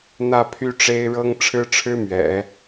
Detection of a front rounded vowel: present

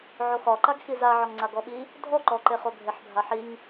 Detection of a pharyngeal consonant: present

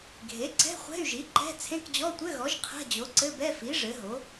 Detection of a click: present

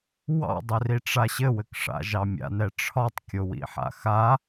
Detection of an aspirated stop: present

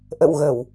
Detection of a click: absent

